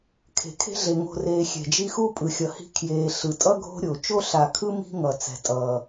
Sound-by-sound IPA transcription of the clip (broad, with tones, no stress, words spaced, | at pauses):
kʰe̤˩kʰe̤˦ɮe˩ŋo̤˨ reː˨xʲɛ̤˩d͡ʒi˦xu˥ pʼɯ˩xʲʌ˩hi̤˦ kʰjeː˨ ɬɯ˩tʼʌ˥ɡʱo̤˦ɾʲo˩ t͡ʃo˥ɬa˨kʰɯ˥ mi̤˦ŋʌ˩ t͡sɛ̤˩tʼʌː˩